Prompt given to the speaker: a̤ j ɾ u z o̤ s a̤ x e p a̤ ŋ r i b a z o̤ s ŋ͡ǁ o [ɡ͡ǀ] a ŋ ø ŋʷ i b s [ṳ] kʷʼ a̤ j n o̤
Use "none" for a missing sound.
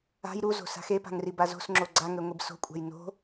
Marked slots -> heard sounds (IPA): ɡ͡ǀ, o̤

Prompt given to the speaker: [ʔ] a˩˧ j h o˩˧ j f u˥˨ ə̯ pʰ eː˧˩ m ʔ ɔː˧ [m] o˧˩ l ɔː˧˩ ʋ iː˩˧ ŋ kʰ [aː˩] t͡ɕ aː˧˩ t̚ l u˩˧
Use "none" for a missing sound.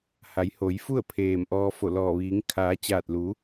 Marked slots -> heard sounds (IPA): h, f, aː˩˧

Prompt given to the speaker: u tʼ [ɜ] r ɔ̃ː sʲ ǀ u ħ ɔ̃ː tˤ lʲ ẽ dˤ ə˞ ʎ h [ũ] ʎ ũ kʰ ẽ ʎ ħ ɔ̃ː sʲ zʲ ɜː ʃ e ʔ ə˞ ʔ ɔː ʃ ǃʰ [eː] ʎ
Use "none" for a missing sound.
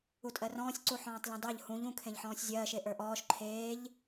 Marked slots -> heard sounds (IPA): ɜ, ũ, eː

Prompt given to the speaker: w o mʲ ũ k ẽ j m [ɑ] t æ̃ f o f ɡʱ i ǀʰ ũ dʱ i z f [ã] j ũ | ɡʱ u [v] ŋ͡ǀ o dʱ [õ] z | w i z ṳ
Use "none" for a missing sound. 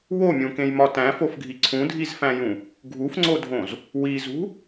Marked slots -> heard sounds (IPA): ɒ, æ̃, f, õ

